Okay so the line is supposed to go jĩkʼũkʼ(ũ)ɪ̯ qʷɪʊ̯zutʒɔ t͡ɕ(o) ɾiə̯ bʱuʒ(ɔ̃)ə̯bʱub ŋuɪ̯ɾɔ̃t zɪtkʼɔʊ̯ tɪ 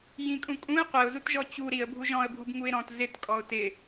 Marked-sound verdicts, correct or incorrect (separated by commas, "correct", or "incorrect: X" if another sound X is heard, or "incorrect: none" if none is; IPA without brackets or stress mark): correct, incorrect: u, correct